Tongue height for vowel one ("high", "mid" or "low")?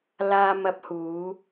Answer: low